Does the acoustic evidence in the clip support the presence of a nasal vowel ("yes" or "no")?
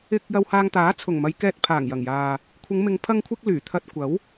no